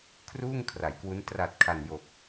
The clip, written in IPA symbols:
kʰruː˥˩ŋkʰra˩˦jkwu˦˥n tra˨˩t̚kʰa˨˩njo˨˩k̚

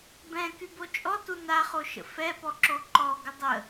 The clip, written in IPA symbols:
bɛ̃ kybot͡ʃʼɔtu naχoʃə̰ fɛpɔǁo ǃɔɡə dˤə

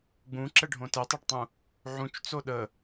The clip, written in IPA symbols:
ɡ͡bũǁɛɖʱõ tɛtˤɛɖtˤũ | ʕũt͡ʃt͡so ɗə

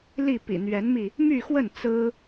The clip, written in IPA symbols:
li˥˩ pḭ˨˩n̪ɥɛ˧˥nmi˧ | my˥˧xwə˥˩n t͡sɹ̩˥

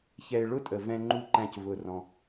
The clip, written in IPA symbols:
çɛ˨ɪ̯ ɭʊ˦ tʼə˨ vɛ̃˦ŋ͡ǃu˦ǃæ̃˦˨c vʊ˦˨rɔ̃˦

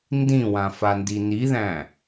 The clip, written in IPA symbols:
ndĩwã fandiniðæ̃

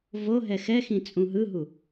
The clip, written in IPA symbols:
voɦɛ xɛxĩ t͡sʼũɦɯɦu

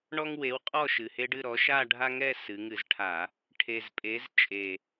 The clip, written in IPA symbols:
ɳɔ˦ŋwe˨˥wqʼɔ˥˨ ʃɨ˨˩he˦ɖɨ˥˨ɾɔ˨˥ ʃa˥˨ ɖʱa˦ŋɛ˥˨sɨ˩˧ŋɨ˧˩˧z ʈʰa˧˩˧ | ʈʰe˨˩zpʼe˨˥z t͡ʃʼe˨˩

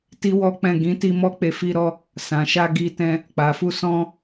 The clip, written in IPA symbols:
ti˦wɔ˦k͡pɛ̃˦˨ ɡĩ˨˦ti˧ mɔ˦k͡pe˧ fi˧ɾɔ˧ | sã˨ʃa˧ ɡi˧tɛ̃˧ | k͡pa˨fu˧sɔ̃˧

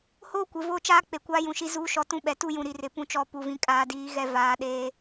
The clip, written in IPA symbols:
hoː˦ kʷɪ˨vo˦˨t͡ʃaː˦ k͡pe˨kʷaː˦jũ˨ʃi˦ zuː˦ ʃɔ˦tũ˦ɓɛ˨ tu˦jũ˨ ɾi˨rɪ˨ pũ˦t͡ʃɔ˦˨ pu˨vĩ˨ kʼaː˨diː˨˦ ɣɛ˦ vaː˨ ɗeː˦

